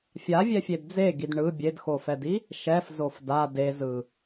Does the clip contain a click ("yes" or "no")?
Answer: no